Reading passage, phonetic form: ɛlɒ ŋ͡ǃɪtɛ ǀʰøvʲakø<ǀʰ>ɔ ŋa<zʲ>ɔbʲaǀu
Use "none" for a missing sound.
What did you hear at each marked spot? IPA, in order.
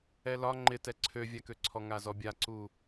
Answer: ǀʰ, z

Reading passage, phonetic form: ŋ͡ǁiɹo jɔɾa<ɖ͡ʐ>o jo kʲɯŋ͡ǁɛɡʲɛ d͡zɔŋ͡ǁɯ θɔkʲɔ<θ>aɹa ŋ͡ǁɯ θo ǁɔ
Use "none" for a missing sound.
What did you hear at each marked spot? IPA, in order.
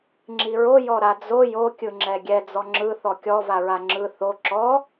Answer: d͡z, v

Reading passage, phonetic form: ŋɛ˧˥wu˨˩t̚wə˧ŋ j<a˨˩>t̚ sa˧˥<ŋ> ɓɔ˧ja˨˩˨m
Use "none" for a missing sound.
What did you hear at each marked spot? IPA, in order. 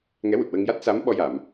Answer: a˦˥, m

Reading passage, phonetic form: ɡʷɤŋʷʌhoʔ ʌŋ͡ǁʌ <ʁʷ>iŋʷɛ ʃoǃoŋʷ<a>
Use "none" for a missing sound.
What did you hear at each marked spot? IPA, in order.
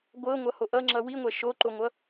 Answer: w, ʌ

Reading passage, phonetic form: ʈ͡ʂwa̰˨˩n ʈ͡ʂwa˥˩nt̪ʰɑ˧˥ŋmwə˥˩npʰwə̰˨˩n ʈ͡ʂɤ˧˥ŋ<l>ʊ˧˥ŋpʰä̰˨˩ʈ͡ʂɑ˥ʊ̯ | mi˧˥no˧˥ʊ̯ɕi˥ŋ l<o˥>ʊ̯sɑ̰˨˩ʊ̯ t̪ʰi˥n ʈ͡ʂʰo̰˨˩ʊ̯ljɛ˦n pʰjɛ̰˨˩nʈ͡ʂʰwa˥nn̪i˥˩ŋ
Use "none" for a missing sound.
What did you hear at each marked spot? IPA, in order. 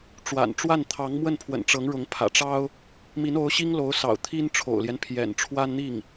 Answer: ɻ, o˧˥

